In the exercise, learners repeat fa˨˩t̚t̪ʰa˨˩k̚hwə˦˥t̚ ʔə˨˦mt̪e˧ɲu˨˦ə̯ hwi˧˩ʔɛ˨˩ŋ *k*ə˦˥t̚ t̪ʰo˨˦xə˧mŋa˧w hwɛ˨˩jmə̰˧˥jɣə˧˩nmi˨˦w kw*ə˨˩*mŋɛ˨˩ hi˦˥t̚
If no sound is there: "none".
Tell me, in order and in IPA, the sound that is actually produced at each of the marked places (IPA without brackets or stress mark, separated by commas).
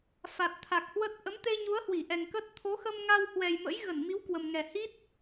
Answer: k, ə˨˩